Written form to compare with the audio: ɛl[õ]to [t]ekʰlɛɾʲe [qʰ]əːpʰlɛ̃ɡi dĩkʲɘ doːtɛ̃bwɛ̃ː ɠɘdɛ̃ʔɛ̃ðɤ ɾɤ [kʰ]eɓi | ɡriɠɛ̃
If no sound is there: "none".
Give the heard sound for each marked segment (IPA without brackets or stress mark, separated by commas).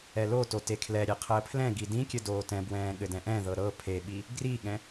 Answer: o, t, qʰ, pʰ